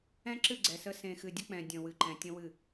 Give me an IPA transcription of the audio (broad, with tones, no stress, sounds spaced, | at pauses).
ɛ̃˦ ǁ ɨ˦˨ ɡ͡ǀ ɛ˨ s ə˦ s ẽ˨ x ɨ˨ dʲ ə˦ k͡p ɛ̃˨ dʲ ə̃˨ w ɨ˨ ǃ ɛ̃˨ tʲ ə̃˦ w ɨ˦˨